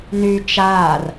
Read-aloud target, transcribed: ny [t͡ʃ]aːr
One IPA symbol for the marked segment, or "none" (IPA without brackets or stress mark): t͡ʃ